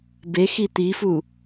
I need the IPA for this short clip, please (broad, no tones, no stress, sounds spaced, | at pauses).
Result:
b e x i t̪ i f u